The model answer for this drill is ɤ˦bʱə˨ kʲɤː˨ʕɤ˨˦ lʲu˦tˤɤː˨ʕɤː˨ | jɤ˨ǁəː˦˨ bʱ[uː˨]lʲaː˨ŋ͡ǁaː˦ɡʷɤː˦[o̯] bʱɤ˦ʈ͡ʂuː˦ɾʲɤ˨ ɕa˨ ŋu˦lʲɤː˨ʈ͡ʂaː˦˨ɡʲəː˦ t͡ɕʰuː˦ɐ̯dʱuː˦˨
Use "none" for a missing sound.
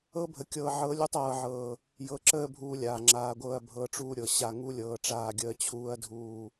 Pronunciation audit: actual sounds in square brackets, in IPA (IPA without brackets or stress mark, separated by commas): uː˦, ɐ̯